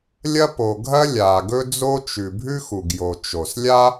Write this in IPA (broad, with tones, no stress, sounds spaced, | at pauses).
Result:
lʲ ɐ˥ p o˩ ɡʱ ɐ˥ lʲ aː˩ ɡ ɵ˥ d͡z o˥ t͡ʃ ʉ˩ bʱ ʉ˥ x u˩ ɡ j o˩ t͡ʃ o˩ s lʲ a˥